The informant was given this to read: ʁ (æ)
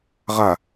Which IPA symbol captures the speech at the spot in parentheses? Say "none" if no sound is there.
a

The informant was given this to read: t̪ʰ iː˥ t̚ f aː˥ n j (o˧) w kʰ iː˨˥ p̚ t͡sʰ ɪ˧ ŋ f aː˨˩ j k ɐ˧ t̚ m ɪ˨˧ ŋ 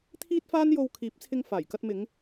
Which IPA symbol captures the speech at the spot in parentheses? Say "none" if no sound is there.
o˧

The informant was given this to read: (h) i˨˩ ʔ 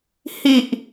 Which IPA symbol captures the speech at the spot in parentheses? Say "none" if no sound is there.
h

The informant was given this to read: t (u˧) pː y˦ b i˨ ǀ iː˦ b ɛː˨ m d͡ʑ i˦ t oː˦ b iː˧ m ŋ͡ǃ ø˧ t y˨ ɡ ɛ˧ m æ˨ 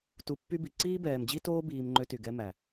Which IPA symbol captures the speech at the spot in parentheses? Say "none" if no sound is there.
u˧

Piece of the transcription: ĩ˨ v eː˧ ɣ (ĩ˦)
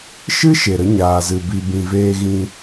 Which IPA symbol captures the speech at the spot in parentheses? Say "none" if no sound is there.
ĩ˧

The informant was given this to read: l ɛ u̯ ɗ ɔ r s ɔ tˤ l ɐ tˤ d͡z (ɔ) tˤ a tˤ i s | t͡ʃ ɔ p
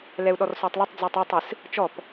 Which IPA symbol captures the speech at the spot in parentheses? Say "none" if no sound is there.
ɔ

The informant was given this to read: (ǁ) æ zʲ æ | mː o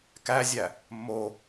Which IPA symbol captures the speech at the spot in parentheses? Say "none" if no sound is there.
k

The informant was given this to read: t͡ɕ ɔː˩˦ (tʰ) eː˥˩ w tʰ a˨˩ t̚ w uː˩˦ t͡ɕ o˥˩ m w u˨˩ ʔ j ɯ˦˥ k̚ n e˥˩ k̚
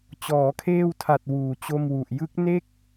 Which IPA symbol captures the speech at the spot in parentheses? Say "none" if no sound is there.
kʰ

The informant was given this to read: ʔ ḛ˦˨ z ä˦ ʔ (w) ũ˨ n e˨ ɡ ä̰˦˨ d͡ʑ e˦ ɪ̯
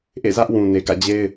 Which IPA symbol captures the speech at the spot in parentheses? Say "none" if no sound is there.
w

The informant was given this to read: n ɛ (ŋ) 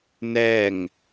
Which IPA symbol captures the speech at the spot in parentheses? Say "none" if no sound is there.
ŋ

